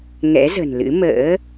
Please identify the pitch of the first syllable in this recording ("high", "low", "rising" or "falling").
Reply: rising